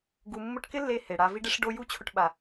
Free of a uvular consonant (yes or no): yes